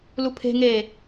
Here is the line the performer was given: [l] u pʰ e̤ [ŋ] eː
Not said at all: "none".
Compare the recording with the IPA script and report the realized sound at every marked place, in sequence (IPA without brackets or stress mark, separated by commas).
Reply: l, ŋ